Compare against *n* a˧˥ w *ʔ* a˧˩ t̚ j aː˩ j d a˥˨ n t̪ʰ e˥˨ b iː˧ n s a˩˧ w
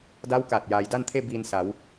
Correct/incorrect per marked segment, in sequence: incorrect: d, incorrect: k

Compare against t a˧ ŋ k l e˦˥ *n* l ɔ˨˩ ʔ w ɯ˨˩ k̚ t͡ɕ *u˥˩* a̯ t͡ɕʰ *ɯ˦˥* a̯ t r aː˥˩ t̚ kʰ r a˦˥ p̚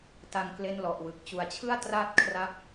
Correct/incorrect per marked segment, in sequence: correct, incorrect: u˨˩, incorrect: ɯ˥˩

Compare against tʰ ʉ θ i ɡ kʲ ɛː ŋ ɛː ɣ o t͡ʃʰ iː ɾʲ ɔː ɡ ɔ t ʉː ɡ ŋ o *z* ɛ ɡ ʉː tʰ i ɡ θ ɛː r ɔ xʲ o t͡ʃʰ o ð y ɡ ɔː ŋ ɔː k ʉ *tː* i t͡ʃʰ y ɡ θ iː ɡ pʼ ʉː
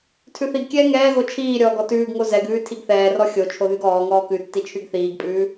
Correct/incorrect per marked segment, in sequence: correct, correct

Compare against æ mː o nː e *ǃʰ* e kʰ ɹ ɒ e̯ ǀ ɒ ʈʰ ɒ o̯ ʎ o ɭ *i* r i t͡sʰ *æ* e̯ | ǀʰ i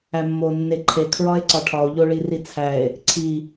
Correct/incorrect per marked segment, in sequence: correct, correct, correct

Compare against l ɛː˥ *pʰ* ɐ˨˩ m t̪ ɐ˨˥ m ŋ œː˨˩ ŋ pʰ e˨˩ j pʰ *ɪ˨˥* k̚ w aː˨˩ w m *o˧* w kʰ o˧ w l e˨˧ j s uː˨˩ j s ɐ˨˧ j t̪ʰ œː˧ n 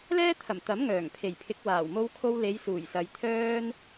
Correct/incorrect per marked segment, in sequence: incorrect: t̪ʰ, correct, correct

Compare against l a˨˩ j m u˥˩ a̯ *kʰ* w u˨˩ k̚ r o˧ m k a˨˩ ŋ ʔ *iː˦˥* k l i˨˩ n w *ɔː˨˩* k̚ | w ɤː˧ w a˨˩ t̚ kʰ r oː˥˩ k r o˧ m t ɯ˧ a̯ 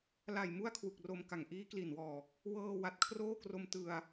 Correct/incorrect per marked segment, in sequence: correct, correct, correct

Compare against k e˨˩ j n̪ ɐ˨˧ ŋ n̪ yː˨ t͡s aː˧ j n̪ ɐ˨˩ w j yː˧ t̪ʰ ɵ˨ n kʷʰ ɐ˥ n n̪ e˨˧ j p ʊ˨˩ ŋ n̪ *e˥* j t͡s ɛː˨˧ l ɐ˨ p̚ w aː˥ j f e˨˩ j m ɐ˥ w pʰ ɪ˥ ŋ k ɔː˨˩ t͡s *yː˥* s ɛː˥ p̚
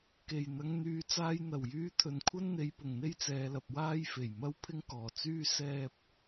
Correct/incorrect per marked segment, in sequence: correct, correct

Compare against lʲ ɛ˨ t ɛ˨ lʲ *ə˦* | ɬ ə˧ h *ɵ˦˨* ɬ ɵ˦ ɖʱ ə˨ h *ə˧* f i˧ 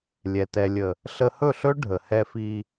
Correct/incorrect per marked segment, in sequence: incorrect: ə˨, correct, incorrect: ɛ˧

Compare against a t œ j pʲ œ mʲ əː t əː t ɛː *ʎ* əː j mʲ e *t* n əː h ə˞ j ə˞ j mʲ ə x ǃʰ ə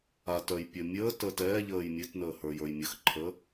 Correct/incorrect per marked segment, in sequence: correct, correct

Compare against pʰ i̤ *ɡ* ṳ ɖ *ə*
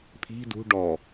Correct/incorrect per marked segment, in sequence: incorrect: d, incorrect: ɔ

